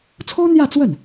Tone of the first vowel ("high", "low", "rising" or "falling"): high